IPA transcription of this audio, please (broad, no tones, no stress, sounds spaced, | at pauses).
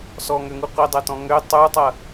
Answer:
s ɔ ŋ ø ŋ u qʷ i dˤ ɐ t ɔ̃ ŋ ø tˤ u tˤ ɐ